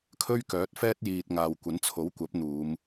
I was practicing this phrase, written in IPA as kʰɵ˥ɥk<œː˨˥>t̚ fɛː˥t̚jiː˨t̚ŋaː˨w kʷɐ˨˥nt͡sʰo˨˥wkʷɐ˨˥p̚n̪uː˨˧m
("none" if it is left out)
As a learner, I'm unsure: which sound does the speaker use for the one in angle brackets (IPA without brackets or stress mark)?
œː˨˥